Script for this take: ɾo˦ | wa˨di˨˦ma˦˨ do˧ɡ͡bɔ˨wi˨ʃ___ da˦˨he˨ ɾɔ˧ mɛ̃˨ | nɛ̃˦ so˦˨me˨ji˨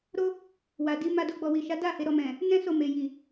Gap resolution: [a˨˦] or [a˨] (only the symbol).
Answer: a˨˦